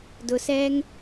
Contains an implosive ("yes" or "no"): no